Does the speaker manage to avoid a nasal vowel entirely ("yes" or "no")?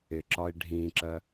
no